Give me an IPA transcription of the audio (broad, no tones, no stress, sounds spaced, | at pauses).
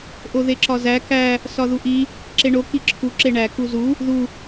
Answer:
ʔ o ð e ǁ ɒ z æ k æ | s ɒ ð u ʔ i | ǁ e ɳ o k i ǁʰ u ǁ e ɳ æ k u z u | ð u